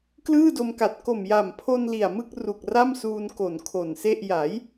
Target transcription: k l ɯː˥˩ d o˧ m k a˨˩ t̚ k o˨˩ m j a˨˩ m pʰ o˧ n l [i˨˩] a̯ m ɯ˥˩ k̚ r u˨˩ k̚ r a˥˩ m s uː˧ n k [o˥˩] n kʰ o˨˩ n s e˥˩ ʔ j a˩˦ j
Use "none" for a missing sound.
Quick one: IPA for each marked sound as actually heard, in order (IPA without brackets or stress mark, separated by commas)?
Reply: i˨˩, o˨˩